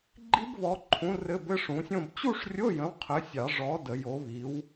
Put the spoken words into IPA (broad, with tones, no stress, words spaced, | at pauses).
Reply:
ɡ͡ǃi˦˥bβɔ˨˦ǃʰũ˨˦ rɘ˧˥˧bɘ˧˥˧ ʂũ˨˦sʲõ˥˧b t͡ɕu˥˧ʂrʲo˧˥˧jə̃˨˦w qʰɘ˨˦sʲɑ˨˩˦ ʐɔ˨˦ də˨˩˦jo˨˦βi˨˦w